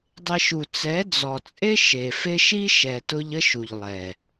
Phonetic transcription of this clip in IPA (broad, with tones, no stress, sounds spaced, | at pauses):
dˤ e˧ ʃ u˨ t͡s ɛ˨˦ d͡z ɔ˨ t͡sʼ e˦ ʃ e˨ f e˦ ʃ i˦ ʃ ɛ˨ t ʊ˧ ʎ ə˦ ʃ u˨ ʎ lˠ ɛ˨